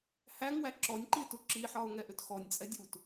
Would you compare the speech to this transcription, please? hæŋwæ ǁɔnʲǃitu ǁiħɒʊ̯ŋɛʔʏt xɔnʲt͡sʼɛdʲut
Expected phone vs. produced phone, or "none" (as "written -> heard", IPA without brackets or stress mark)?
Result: none